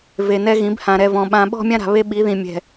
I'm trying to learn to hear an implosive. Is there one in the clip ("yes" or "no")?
yes